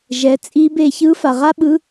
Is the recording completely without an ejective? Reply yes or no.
no